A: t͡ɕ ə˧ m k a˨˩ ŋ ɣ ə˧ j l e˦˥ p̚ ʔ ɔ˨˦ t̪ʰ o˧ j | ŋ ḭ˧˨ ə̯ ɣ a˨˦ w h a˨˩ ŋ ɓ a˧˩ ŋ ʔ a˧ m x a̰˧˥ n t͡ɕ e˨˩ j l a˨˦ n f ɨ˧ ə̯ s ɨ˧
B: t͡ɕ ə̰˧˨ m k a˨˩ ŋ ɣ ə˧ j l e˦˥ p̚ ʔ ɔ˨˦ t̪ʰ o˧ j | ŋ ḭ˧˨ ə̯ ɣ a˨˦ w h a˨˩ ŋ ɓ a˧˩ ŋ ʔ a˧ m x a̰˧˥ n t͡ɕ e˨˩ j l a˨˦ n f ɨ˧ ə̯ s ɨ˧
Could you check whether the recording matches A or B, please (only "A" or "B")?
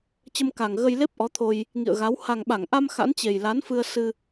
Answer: A